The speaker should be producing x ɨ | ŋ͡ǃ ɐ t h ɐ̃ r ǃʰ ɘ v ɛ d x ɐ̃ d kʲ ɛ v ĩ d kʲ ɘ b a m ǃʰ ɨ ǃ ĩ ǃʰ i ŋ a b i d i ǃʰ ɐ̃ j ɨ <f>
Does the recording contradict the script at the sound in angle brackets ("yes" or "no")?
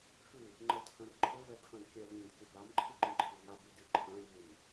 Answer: yes